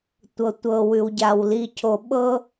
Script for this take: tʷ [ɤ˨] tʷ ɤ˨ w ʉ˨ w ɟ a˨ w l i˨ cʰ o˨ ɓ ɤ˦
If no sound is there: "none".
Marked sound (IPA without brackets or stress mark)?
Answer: ɤ˨